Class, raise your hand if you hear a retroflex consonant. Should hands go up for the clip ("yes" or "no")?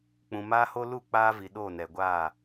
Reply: no